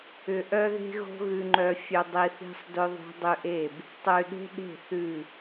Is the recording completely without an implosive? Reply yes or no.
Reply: no